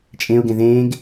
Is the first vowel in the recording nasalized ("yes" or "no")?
yes